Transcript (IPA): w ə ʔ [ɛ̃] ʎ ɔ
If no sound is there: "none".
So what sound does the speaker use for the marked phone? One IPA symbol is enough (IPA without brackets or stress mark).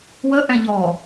ɛ̃